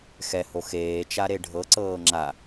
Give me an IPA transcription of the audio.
x ɛ h o x eː t͡ʃ a ɾ e ɖʱ ɤ ǀ ɤː ŋ͡ǁ a

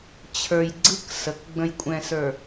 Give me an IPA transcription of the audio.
t͡ɕʰ ə˞˨ j ɡ͡ǀ ɯ˦ k s ə˨ k ɡ͡b ə̃˨ j kʷʼ ɛ̃˨ s ə˞˨

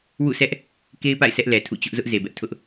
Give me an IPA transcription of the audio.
w ṵ˦˨ sʰ ɛ˦ ʔ | k e˦ ɪ̯ p a̰˦˨ ɪ̯ sʰ ɛ˦ ʔ l ɛ˨ tʰ ṵ˦˨ t͡ɕ ʊ˦ ʔ z ʊ˦ ʔ z e˨ b ɛ˦ ʔ tʰ ʊ˦ ʔ

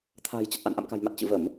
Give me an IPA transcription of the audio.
t̪ʰ a̤ː˨˩ j t͡ɕ ə˨˩ t̚ ʔ a̰˧˨ n ʔ a̰˧˨ m k a̤˨˩ j m a˨˩ t̚ t͡ɕ ɨ̰˧˨ v ə˧˩˨ m

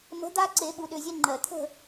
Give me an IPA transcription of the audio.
m ə̤˨˦ d̪ a˦ ǀ e˨˩˦ ɓ u˨˩˦ ɗ ʏ˩˧˩ zʲ ɛ˦ ŋ͡ǃ ɜ˩ t̪ʰ ə̤˦˨

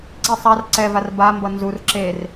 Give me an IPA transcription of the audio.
ǀ i sˤ a r ǀ ɛ v a r b a m b ʌ n z u r ǁ e r

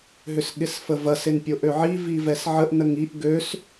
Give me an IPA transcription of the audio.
ɦ ʏ s ɠ ɪ s f ə v ɐ s ɪ n pʲ o ʔ ø ʕ i v i v ɛ s ʕ ə ʔ n ə ŋ i ʔ ɡ ø s

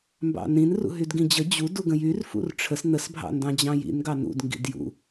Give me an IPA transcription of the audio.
m b ɑ̰ n ĩ n r ṵ ɦ y d ɡ ĩ d͡ʑ ə d͡ʑ u d u ɡ ə̃ j y r f ṵ r ʈ͡ʂʰ ə s n̪ ə s bʱ ɑ̰ n d ɑ̃ d͡ʑ ɑ̃ j ḭ n ɡ ɑ n ṵ d ŋ ɡ ḭ d j ṵ

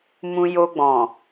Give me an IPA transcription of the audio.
m ũ˧ j o˧ ɡ͡b ɔ̃˨

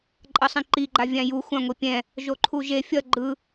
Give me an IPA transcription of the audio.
ǃʼ ʌ sˤ ɛ̃ ǃ i ɡ͡ǃ a vʲ ã j u xʷ ã ŋʷ i pʲ ɛ̃ | ʒ o ǃʰ u ʒ e fʲ ʌ ɡ͡ǃ ɯ

